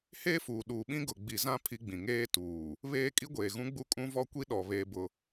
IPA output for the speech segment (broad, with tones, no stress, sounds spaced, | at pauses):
h eː˦ f uː˨ ɗ uː˨ ɓ ĩ˦ ɡ ʊ˨ ɡ͡b i˨ z ã˦ pʰ i˦ ɡ͡b ĩ˨ ŋ eː˦ t uː˨ | β eː˦ kʼ i˦ ɡʷ eː˨ ɣ ũ˦ ɡ͡b u˦ kʼ ũ˦ v ɔ˦ kʷ i˦ ɗ ɔ˨ β eː˦ b ʊ˦